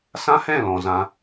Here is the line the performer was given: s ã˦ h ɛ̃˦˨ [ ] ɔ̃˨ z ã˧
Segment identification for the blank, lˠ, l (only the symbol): l